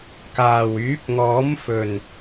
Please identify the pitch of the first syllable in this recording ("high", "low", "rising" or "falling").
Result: low